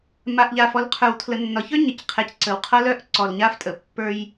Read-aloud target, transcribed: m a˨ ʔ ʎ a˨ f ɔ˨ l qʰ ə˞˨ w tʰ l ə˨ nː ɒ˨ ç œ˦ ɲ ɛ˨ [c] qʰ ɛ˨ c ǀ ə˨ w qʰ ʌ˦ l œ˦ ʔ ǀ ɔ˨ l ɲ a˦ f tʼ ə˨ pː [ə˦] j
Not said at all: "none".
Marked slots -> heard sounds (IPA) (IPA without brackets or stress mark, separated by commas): c, ə˞˦